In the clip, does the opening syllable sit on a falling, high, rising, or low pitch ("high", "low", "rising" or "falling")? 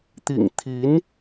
low